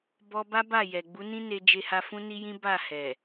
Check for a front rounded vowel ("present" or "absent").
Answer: absent